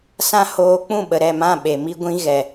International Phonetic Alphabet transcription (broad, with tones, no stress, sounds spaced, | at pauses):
s ã˦ h oː˦ k͡p ũ˦˨ ɓ ə˨ ɾ ɛ˦˨ m ã˦˨ ɓ e˨ m i˦ ɡʷ ĩ˦ ɣ ɛ˨